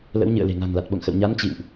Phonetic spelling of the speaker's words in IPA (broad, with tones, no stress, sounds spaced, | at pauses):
l ə̰˧˥ w ɲ ɨ̰˧˨ ə̯ l e̤˨˩ ŋ a̤˨˩ ŋ l a˨˩ t̚ ɓ o̰˧˨ ŋ x ə̰˧˨ w ɲ a˨˦ n t͡ɕ ḭ˧˨ w ʔ